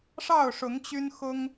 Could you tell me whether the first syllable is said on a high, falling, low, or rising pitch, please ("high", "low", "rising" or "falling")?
falling